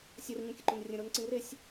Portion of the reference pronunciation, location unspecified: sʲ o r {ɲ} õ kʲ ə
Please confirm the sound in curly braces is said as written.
yes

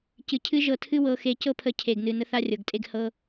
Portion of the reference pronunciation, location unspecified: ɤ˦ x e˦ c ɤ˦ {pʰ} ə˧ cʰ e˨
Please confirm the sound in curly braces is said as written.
yes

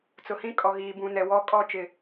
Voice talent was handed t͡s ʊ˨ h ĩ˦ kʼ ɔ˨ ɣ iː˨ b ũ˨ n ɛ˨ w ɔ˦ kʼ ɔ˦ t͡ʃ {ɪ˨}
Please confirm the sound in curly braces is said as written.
yes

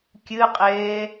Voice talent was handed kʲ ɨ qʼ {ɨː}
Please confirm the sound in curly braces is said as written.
no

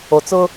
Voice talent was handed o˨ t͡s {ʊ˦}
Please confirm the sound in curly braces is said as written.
yes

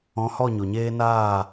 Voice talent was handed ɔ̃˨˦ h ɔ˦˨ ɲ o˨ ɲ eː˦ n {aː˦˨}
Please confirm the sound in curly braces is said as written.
yes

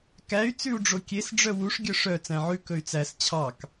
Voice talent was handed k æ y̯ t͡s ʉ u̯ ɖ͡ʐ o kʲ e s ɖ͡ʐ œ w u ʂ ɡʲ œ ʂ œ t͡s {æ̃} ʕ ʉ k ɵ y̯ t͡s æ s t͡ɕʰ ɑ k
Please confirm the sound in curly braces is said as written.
yes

